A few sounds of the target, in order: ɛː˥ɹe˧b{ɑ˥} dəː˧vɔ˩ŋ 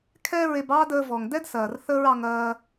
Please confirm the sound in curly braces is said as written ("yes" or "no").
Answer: no